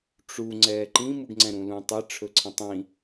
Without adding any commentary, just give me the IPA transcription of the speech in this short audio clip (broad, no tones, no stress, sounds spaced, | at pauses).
ʈ͡ʂ u ŋ͡ǀ ɛː ǃ ĩ m ɯ ɡ ŋ͡ǀ ɛ̃ ɾ ũ l ũ tˤ ɛ ʈ͡ʂʰ ɵ ǀʰ ĩ tˤ ĩ